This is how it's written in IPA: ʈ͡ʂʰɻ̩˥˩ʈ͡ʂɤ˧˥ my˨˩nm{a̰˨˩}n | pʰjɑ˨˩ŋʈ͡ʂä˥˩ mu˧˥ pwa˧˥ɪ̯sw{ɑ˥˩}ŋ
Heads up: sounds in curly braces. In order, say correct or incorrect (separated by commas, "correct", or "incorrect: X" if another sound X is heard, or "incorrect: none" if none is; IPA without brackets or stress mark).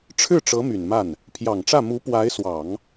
incorrect: a˥˩, incorrect: ɑ˨˩˦